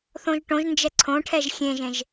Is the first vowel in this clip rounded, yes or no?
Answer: yes